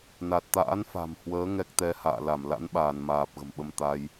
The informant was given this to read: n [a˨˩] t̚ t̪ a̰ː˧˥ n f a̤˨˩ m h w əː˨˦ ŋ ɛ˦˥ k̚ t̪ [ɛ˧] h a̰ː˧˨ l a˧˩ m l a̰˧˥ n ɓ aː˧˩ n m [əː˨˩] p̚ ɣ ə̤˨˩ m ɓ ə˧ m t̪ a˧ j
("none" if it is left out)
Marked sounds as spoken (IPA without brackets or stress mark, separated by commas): a˨˩, ɛ˧, aː˨˩